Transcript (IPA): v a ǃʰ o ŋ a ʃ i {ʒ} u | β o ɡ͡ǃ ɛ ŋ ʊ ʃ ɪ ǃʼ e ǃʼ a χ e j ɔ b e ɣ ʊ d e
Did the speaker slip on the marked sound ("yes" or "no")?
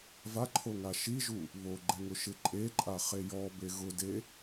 no